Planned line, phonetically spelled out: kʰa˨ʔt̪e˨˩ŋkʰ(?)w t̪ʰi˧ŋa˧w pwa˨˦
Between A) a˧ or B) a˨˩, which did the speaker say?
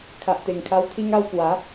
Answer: A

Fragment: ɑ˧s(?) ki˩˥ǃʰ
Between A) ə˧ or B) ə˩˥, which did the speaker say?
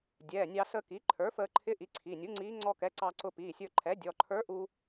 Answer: A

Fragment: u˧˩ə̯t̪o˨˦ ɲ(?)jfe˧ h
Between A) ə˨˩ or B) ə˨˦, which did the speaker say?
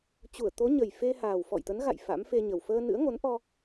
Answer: A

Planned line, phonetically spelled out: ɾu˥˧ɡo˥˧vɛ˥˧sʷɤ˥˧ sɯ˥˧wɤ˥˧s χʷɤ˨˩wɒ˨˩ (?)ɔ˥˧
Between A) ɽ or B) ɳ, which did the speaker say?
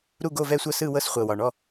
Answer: B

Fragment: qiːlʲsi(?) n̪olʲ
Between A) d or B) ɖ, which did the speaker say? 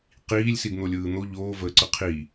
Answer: A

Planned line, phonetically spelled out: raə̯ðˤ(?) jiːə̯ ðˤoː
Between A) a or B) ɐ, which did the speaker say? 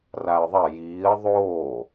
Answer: B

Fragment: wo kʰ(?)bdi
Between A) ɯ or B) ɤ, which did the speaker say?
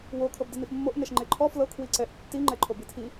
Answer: B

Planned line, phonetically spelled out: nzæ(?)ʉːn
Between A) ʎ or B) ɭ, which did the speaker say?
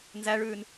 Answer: B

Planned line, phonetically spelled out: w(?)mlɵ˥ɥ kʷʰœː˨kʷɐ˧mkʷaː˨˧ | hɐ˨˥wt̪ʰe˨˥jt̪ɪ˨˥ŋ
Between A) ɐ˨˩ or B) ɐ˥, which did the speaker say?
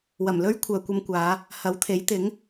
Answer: A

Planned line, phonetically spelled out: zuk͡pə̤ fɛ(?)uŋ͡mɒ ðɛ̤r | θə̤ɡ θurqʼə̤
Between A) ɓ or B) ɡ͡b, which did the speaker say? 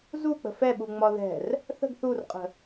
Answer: A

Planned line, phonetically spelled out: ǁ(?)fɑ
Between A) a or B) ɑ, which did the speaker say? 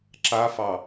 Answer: A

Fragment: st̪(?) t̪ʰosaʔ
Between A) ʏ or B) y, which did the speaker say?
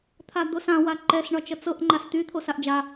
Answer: B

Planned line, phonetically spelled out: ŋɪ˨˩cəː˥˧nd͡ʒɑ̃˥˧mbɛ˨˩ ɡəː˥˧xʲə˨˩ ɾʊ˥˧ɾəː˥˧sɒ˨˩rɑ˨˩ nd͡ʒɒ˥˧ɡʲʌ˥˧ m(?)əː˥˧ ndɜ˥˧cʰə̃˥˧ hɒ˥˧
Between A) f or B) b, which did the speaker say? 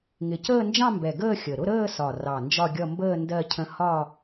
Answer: B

